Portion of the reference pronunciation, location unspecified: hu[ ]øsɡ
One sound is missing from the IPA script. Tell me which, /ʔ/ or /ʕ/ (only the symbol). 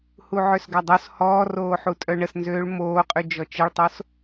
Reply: ʕ